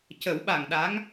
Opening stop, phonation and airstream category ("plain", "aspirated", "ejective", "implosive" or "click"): plain